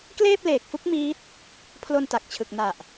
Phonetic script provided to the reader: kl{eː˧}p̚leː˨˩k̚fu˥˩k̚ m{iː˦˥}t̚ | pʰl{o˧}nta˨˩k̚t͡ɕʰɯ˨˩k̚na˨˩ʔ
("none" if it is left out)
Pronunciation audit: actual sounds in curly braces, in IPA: eː˥˩, iː˦˥, o˧

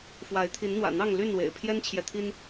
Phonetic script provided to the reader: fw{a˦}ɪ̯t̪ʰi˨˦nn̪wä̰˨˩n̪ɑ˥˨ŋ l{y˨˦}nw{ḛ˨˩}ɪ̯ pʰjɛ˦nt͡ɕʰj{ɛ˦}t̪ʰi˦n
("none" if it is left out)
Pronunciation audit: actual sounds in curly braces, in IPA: a˨˦, y˥˨, ḛ˨˩, ɛ˨

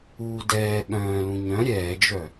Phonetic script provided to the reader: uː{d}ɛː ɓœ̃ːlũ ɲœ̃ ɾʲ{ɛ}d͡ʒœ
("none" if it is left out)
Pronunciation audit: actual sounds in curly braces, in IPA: d, ɛː

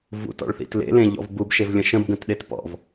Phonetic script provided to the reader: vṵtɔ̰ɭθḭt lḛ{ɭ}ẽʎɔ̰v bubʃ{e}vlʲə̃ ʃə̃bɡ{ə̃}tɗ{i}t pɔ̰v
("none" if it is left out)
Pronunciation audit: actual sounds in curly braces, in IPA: l, e, ə̃, e

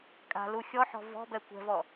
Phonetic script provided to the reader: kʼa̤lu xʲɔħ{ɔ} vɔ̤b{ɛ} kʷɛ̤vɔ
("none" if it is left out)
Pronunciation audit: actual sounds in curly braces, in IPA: ɔ̤, ɛ

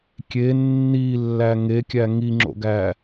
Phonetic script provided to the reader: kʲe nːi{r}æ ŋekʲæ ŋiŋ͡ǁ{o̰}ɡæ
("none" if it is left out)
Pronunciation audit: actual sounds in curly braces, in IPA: lː, o̰

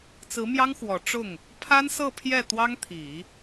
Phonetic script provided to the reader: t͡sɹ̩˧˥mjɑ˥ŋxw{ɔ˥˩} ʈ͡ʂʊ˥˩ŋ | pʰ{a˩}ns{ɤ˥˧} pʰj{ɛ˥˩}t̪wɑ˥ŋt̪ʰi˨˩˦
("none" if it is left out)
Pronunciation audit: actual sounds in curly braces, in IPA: ɔ˨˩, a˥, ɤ˥˧, ɛ˥˩

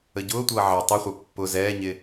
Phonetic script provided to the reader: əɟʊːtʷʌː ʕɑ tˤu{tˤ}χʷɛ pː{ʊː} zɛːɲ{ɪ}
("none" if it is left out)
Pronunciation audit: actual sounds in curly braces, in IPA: none, ʊ, ɪ

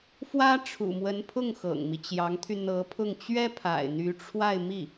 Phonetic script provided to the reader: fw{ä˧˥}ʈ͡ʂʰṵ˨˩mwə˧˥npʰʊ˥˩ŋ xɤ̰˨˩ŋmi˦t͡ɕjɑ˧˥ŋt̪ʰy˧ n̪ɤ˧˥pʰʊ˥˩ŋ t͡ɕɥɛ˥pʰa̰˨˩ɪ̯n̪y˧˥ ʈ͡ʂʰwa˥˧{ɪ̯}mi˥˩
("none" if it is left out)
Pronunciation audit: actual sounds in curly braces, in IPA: ä˥, ɪ̯

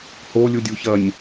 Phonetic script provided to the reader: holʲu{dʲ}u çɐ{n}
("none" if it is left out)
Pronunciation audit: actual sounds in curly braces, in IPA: dʲ, nʲ

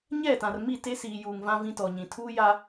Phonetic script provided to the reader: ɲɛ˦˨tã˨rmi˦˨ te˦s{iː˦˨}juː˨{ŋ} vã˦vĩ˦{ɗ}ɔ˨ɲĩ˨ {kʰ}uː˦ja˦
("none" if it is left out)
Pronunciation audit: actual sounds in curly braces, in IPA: iː˨, ŋ, t, tʰ

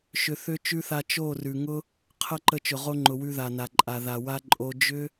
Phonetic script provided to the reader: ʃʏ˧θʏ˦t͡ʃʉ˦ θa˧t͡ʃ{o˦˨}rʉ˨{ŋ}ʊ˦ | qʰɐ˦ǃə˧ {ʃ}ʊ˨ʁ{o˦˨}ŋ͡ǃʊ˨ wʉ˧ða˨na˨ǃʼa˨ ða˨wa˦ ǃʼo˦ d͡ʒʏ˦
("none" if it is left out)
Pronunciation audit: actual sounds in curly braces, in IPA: o˦˨, ŋ, t͡ʃ, o˧

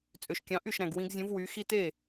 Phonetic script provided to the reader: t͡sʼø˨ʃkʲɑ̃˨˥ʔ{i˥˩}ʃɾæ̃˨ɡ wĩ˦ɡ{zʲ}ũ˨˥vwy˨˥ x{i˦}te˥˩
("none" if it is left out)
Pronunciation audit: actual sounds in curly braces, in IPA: y˥˩, zʲ, i˦

